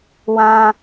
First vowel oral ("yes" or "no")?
no